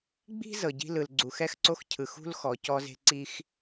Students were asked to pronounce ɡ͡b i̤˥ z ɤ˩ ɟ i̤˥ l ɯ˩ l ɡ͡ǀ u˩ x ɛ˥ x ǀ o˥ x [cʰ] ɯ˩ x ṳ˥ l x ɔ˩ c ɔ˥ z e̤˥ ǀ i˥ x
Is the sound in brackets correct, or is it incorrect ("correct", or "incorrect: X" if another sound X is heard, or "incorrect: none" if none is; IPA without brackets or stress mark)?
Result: correct